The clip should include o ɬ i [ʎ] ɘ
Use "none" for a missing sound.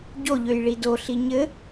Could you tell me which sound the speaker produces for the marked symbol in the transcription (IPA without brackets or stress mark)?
ɲ